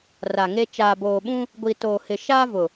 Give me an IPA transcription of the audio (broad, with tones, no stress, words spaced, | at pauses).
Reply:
ra˨ŋe˦ t͡ʃaː˨boː˨ɓũ˦ | ɡʷi˨toː˨ hɪ˨ ʃaː˦vʊ˨